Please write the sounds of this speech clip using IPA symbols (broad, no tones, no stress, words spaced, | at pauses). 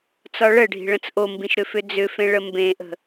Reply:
t͡sɒɭəɖʱi̤ ɭə̃t͡sʔombĩʃ ɾʏfʏd͡zʏfẽ ɭəmbẽʔə̤